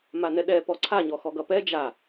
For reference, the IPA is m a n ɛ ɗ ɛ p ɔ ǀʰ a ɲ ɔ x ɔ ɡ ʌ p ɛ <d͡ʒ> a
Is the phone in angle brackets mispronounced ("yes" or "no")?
no